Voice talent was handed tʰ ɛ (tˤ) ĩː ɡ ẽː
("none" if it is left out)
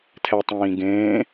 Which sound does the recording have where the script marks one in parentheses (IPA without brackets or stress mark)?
tˤ